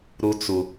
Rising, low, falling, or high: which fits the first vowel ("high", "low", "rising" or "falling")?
high